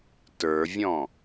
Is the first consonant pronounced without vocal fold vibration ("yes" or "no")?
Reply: yes